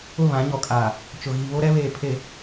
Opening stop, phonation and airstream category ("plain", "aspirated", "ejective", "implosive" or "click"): ejective